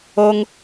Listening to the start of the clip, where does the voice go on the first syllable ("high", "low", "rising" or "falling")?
high